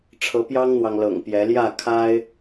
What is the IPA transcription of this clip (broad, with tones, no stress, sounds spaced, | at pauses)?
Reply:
ʈ͡ʂʰ ɤ˨˦ p j ɑ˦ ŋ n̪ w ɑ˨ ŋ l ɤ̰˨˩ ŋ p j ɛ˨˦ l j ä˥˨ kʰ a˦ ɪ̯